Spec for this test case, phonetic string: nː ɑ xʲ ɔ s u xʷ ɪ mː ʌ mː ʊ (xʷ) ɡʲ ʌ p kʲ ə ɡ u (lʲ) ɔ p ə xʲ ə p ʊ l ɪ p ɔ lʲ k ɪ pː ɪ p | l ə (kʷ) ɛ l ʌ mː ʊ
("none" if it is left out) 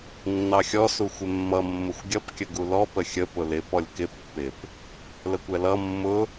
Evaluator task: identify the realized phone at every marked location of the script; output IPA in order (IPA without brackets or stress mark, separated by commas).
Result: xʷ, l, kʷ